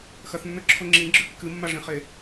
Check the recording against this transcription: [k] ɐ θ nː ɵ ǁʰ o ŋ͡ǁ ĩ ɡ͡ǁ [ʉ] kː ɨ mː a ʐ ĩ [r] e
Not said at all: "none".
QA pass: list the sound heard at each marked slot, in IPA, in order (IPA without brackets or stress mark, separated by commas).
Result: x, ʉ, χ